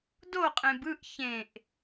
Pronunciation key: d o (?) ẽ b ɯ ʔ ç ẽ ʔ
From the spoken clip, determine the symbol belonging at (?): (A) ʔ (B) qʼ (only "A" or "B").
B